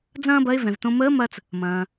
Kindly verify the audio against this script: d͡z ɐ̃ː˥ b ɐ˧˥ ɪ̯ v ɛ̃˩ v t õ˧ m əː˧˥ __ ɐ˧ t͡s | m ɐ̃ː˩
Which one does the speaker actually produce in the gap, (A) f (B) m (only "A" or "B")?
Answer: B